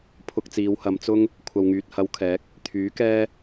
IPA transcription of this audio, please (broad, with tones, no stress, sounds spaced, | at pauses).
pʰ ʊ˧ k̚ t͡s iː˨˧ w h ɐ˨˧ m t͡s ʊ˥ ŋ | kʷʰ ɐ˨ w ŋ yː˨ t̚ h ɐ˧ w kʰ ɛː˨˥ k̚ | t̪ʰ yː˨˥ k ɛː˥